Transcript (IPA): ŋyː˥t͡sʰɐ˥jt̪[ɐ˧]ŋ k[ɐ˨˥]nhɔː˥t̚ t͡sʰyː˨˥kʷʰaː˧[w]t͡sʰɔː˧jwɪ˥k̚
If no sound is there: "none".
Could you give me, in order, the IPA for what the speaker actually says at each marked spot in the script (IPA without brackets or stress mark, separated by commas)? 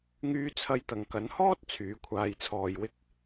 ɐ˧, ɐ˨˧, j